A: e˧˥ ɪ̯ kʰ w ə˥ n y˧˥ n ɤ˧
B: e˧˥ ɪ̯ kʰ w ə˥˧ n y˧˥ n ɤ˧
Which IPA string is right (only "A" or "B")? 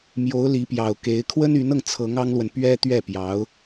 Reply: A